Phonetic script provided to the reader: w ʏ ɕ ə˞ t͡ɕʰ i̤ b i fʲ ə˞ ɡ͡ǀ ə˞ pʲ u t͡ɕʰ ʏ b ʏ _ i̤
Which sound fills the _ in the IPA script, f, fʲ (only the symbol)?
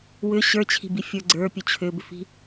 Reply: f